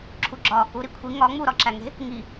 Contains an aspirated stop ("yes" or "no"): yes